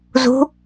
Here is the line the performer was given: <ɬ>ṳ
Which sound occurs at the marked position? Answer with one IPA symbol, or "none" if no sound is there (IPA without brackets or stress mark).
z